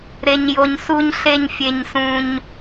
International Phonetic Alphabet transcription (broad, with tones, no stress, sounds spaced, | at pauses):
ɾ e˨ ɲ j o˨ ɲ s u˨ ɲ ɬ e˨ ɲ fʲ e˨ ɲ s ũ˨ ɲ